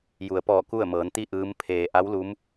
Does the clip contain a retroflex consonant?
no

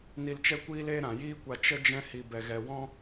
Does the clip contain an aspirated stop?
no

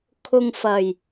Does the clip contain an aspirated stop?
yes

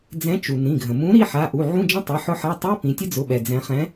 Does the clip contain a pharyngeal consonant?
yes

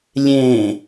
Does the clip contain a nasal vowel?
yes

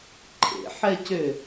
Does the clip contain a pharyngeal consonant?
yes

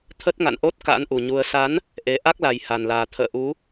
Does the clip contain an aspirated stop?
yes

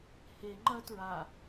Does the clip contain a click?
yes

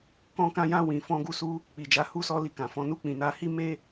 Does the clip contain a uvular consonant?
no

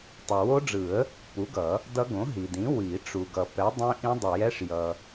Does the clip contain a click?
no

